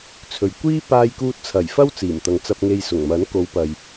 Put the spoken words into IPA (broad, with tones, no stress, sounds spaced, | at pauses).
t͡sʰ ɵ˨ ɥ kʷ iː˥ p aː˧ j k uː˧ t̚ t͡sʰ ɐ˨˩ j f ɐ˥ w t͡s iː˨˩ m t̪ ɐ˨ ŋ t͡s ɐ˧ p̚ ŋ e˧ j s ʊ˨˩ ŋ m ɐ˨˥ n k o˨˧ w p ɐ˨ j